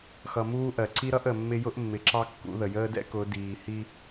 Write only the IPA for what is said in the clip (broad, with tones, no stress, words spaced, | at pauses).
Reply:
xʌ˨ muː˦ʔɜ˨ ǀi˦ɾʌ˦ʔ ə˨mːɪ˦ jʊ˦ʔmːɪ˨ ǁɑ˦kːṵ˨˦ðə˨ jəː˦dɛ̰˦ kʊ˨˦ diː˨hi˦